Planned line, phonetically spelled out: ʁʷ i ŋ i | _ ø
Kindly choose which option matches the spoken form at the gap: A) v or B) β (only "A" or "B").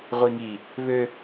B